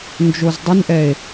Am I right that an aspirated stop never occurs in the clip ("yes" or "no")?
yes